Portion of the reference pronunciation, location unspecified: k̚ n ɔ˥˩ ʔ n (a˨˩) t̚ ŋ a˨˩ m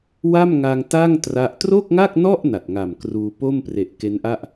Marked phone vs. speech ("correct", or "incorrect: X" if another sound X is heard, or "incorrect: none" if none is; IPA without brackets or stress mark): correct